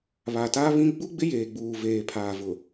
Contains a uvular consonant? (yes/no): no